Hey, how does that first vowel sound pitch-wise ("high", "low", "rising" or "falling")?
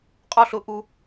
falling